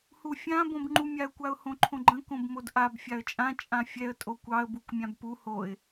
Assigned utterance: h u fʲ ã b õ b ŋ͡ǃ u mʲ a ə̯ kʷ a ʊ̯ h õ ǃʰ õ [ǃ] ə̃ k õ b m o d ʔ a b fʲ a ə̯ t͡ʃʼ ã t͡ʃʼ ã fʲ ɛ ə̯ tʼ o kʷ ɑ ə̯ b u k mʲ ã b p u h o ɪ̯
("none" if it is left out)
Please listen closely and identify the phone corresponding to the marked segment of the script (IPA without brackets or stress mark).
ɡ͡ǃ